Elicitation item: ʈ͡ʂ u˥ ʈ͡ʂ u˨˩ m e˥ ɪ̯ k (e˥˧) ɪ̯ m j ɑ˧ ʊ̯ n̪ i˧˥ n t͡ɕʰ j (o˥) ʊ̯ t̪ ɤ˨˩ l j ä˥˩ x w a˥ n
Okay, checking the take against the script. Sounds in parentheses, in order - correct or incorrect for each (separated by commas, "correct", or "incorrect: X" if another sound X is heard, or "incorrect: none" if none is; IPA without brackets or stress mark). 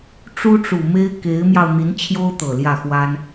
incorrect: e˧˥, correct